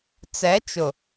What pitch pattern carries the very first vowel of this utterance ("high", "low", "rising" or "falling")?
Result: rising